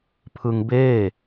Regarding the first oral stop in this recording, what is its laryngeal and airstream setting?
aspirated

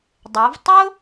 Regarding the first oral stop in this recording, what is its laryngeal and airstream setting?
plain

